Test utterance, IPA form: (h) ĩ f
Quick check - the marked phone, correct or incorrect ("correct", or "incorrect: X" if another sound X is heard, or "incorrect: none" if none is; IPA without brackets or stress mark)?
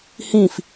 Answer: correct